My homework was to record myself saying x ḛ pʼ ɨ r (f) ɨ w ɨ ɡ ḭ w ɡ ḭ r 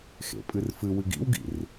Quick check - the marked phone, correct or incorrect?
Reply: correct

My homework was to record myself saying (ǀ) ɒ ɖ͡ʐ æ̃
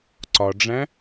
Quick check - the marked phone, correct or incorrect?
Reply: correct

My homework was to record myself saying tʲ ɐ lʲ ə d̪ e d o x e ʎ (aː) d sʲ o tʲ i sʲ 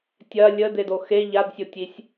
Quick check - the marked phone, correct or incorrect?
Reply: incorrect: a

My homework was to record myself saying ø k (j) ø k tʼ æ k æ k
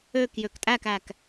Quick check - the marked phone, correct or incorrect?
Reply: correct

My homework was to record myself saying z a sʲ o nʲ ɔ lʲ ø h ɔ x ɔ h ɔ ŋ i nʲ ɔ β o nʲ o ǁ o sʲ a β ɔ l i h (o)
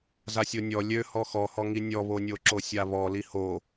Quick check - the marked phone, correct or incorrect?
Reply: correct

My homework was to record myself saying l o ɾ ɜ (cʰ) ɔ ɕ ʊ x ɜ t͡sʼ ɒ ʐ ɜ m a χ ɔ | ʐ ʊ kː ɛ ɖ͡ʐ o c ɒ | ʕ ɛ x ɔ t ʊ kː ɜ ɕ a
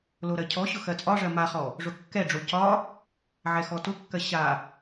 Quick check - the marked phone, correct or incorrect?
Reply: correct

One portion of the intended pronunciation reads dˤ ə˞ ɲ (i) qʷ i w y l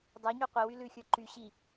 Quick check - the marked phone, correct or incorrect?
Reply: incorrect: y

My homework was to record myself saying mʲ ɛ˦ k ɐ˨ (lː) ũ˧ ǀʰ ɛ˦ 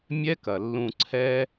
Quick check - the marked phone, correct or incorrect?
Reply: correct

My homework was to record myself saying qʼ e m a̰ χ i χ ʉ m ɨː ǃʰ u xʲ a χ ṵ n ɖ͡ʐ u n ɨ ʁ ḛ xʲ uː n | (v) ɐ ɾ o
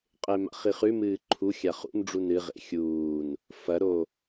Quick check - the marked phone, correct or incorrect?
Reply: incorrect: f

